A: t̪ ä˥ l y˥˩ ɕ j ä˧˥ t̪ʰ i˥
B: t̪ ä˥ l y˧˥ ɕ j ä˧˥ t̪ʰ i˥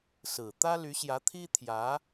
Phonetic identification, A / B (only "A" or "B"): B